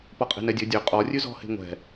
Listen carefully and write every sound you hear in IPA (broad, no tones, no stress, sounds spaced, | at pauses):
p ɔ qʼ e̤ n ɛ dʲ ɵ dʲ ø qʼ ɔ rʲ ʉ z ɔ̤ h e̤ ŋʷ ɛ̤